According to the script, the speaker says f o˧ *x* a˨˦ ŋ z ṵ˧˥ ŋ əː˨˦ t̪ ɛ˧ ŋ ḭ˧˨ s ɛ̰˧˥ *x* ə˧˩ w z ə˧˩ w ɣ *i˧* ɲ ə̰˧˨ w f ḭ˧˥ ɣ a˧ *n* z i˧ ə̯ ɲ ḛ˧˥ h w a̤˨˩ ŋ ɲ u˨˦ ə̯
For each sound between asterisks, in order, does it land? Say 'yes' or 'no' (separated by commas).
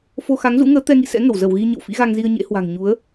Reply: yes, no, yes, no